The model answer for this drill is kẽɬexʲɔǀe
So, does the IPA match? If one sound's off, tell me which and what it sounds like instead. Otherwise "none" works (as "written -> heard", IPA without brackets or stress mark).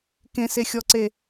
ɬ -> s